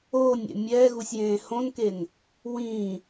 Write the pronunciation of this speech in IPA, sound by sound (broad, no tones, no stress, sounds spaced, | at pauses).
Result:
oː nʲ ɛ̰ mʲ ɛː ɣ u sʲ j ẽː h õ n k e n | w ĩː